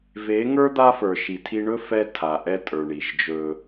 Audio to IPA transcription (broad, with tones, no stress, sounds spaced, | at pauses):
v e˨˦ ŋ ə˞˦ d̪ a˦ f ə˞˨ ʃ i˨ tʰ i˦ ɳ ɵ˦ f ɛ˦ tʰ a˨ ʔ ɛ˦ tʼ ə˞˨ ɳ i˨ ʒ d͡ʒ ɵ˦